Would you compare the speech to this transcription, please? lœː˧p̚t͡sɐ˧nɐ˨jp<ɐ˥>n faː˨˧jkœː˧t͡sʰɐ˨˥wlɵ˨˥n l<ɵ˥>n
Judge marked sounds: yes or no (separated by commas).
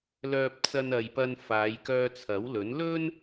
no, yes